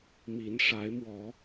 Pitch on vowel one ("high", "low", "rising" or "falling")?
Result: rising